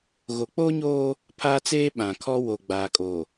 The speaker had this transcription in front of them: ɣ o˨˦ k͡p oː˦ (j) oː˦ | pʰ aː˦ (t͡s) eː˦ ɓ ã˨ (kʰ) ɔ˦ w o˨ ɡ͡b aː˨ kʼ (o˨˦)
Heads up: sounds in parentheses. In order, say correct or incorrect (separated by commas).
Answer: incorrect, correct, correct, incorrect